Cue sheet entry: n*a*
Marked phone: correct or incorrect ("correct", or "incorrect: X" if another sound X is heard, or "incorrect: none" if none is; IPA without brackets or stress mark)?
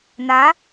correct